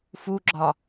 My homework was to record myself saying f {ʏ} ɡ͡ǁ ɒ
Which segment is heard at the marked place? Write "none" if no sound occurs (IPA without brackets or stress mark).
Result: u